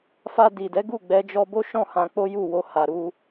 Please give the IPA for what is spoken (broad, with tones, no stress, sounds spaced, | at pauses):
f a˧ d i˨ d ɛ˨˦ ɡ u˦˨ ɡ͡b ɛ˧ d͡ʒ ɔ˧ b o˦ ʃ ɔ̃˦˨ h ã˧ k͡p o˦ j u˦˨ w o˧ h a˨ ɾ u˧